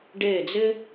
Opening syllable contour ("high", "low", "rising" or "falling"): falling